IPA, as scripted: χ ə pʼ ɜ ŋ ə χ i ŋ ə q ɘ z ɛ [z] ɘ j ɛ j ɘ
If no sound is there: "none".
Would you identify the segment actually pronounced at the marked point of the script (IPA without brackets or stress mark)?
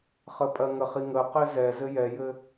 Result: z